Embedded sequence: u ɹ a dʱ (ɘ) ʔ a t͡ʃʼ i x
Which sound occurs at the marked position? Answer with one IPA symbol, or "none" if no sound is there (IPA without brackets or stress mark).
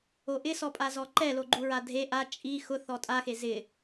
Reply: e